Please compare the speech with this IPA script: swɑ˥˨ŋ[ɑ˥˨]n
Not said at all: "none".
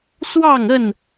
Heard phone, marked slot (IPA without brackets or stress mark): ə˥˨